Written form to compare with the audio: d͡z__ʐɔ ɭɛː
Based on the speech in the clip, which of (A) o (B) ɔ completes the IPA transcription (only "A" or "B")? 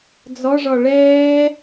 B